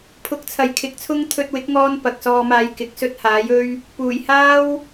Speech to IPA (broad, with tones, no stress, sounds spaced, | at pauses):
pʰ ʊ˨˥ k̚ t͡sʰ ɐ˨ j kʰ ɪ˨˥ k̚ t͡sʰ ʊ˥ ŋ t̪ʰ ɵ˧ t̚ w ɪ˨˥ k̚ ŋ ɔː˧ n p ɐ˨ k̚ s ɔː˧ m aː˧ j k ɪ˨˥ k̚ s ɵ˥ t̚ h aː˨˥ j ɵ˥ ɥ | p uː˨˩ j h aː˥ w